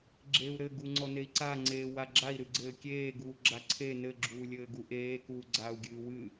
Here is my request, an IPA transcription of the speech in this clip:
ɡ͡ǁ e u̯ ɾ ɘ ɡ u ŋ͡ǀ ɔ n e i̯ ǀ a ŋ͡ǀ eː w a ɡ͡ǁ a i̯ ɾ ɨ ɡ͡ǀ ɘː kʲ eː ɡ uː ɡ͡ǁ a ǀʰ e n ɘ ɡ͡ǁ uː lʲ ɘː ɡ u ʔ eː k uː ɡ͡ǀ aː u̯ ɡʲ ɨː w ɨ

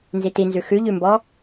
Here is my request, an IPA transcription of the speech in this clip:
n z i t i n z ʉ x ʉ ʎ ʉ m b ɔ

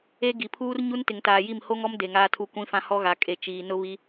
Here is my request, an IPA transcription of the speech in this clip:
e˦ ɡ i˨ pʰ uː˦ r ɲ u˦ n t ɪ˨ ŋ t aː˨ j i˦˨ m h o˦ ŋ ɔ˦ m d e˨ ŋ aː˦ tʰ u˦ kʷ ĩ˦ f ã˦ h ɔ˦ ɣ a˨ kʼ e˨ t͡ʃ iː˨ n ʊ˦ β i˦

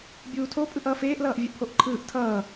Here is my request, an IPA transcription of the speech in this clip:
bʲ uː tʰ o pʼ ɯ ʔ ʌː f eː ʔ l ʌː ʔ vʲ ɛ ʔ pʰ o ʔ ǃʰ ɯː ʔ tʰ ʌː

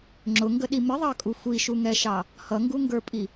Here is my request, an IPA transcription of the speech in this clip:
ŋ͡ǁ ʊ ŋ ɡ ə ɗ i m ɪ ðˤ ɑ kʼ u xʷ i ʃ u ŋ ɛ ʃ ɑ | h ʌ ŋ ɡ u ŋ ɡ ə˞ pʼ i

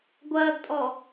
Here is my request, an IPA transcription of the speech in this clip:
ɡʷ ɐː ɡ tʼ ɔ

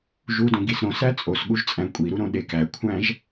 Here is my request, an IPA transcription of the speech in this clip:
ʒ u d õ ɡ i s ɾ õ s æ t͡sʼ o s ɠ u ʒ t͡sʼ æ̃ kʷʼ i ɾ u ɾ õ ɗ e k æ kʷʰ æ̃ ʒ

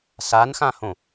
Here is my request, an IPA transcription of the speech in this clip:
s a n x ã h õ

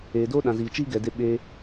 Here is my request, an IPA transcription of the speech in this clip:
eː˨ d oː˦ ɗ ã˨ z iː˨ t͡ʃ iː˦ ɡ ɛ˨ d e˧ ɓ eː˧

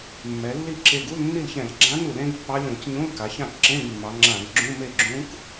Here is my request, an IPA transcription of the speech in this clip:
mː ɛ˩˧ lː i˥˩ ǁ e˧˩ ɡ u˧˥˧ l nː i˥˩ l ç ɛ̃˧˩˧ l ɡ͡ǁ ã˧˥ n u˧˩˧ l ẽ˧˥ ɡ pː ɑ˧˥ lʲ õ˧˩˧ c ɲ ũ˧˥˧ l k a˩˧ ç ã˥˩ k ǁ ẽ˧˥˧ ɡ mː ɑ˩˧ ŋ͡ǁ ã˧˩˧ ɡ ɡ͡ǁ ũ˧˥˧ m e˥˩ ɡ͡ǁ ũ˧˥ k

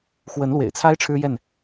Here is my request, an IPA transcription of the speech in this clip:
x w ə˨˦ n l w ḛ˨˩ ɪ̯ t͡sʰ a˦ ɪ̯ ʈ͡ʂʰ ɻ̩˦ j ɛ˥˨ n

